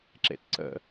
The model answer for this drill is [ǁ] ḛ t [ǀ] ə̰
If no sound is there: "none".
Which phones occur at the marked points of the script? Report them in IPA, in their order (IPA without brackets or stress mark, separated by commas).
ǁ, ǀ